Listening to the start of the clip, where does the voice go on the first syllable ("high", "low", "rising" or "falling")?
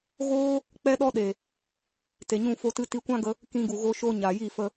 high